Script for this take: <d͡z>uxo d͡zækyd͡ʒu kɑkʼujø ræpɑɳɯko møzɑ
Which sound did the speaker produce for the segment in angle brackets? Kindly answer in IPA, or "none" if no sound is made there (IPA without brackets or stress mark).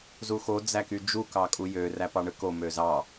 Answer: z